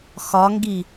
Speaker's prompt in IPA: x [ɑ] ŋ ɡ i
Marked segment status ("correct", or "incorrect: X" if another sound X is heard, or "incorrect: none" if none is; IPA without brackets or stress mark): incorrect: ɒ